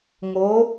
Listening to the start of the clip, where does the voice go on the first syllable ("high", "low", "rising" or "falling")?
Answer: rising